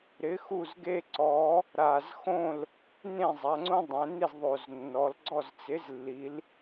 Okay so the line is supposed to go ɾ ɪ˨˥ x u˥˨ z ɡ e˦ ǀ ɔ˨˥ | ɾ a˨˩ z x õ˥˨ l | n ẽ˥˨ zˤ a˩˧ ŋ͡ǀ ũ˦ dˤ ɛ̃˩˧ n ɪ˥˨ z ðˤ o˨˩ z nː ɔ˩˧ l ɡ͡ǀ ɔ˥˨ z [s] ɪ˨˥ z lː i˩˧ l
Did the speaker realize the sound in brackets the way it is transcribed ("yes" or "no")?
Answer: no